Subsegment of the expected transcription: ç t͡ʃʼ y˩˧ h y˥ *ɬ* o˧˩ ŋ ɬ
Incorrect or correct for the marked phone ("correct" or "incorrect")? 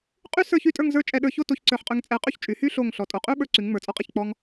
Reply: correct